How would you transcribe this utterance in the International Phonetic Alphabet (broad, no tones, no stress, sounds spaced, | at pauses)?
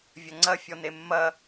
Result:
vʲ ɐ ŋ͡ǀ ɐ fʲ ɔ n e mː ɐ